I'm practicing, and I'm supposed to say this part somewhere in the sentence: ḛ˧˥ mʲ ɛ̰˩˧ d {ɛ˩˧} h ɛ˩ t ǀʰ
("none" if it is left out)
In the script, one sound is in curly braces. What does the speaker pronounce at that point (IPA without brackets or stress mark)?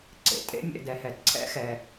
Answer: ɛ˩˧